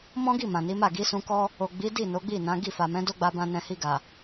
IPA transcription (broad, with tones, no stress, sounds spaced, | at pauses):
m ɔ̃˦ ɡ i˦˨ m ã˨ n i˨˦ m a˦˨ ɡ i˨˦ s ũ˧ k ɔ˦ | o˨ ɡ͡b i˨˦ d i˦˨ n o˨˦ ɡ͡b i˦˨ n ã˨˦ ɡ i˦˨ f a˨ m ɛ̃˨˦ d o˦ ɡ͡b a˧ b ã˧ n ɛ̃˨ h i˧ ɡ a˨